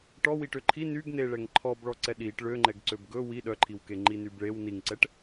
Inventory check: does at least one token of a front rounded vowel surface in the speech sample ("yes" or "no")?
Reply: yes